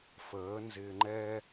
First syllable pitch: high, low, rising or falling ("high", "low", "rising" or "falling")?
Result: rising